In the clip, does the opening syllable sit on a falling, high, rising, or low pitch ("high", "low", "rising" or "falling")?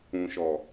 low